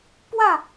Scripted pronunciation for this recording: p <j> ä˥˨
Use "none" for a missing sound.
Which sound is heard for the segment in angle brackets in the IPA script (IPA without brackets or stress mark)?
w